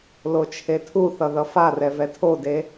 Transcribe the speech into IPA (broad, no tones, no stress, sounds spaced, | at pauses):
l o t͡ʃʰ e tʰ u θ ʌ ð ʌ f a r ɛ v ɛ tʰ o d e